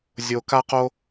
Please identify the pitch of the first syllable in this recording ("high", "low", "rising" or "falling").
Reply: high